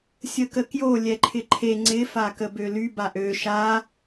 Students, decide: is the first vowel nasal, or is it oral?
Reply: oral